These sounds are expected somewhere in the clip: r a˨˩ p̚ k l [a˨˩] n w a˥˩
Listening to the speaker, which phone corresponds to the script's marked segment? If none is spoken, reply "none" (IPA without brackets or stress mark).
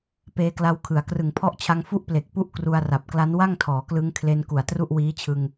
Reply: a˦˥